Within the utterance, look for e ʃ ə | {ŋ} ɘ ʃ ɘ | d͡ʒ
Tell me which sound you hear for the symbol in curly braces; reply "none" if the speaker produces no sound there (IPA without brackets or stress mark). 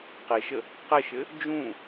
q